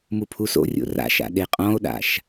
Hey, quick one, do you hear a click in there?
no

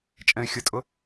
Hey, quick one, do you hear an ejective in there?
yes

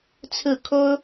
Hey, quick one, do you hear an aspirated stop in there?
yes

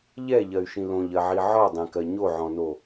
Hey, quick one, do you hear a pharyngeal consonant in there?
yes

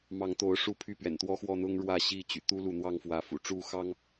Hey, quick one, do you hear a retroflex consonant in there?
yes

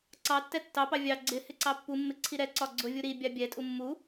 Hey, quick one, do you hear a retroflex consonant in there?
no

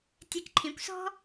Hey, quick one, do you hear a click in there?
yes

